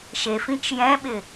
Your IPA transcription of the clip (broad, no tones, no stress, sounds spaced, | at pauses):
ʃ e f ĩ t͡ʃ j ɛ̃ ɓ ɪ